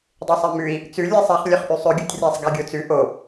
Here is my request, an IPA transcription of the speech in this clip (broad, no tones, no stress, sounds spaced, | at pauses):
dˤ e sˤ ɛ m ʉ i̯ | t͡s ʉ lʲ ɛ sˤ ɛ χ lʲ œ χ ʔ y sˤ ø ɡʲ u tʲ rʲ æ sˤ ɡ æ ɡʲ o t͡s ʉ ʔ o